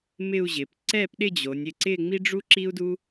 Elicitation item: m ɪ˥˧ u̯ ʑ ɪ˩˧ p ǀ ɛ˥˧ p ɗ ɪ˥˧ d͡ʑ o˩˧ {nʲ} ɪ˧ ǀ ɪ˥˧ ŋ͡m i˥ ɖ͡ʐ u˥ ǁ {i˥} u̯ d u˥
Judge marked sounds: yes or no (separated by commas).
yes, yes